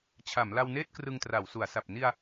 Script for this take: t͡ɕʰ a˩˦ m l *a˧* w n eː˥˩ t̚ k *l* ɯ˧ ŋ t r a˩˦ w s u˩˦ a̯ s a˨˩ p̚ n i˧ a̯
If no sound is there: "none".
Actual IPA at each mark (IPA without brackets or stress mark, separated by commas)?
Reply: a˧, r